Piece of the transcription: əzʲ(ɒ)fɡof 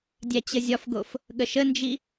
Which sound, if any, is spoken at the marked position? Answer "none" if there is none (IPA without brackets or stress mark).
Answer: ɒ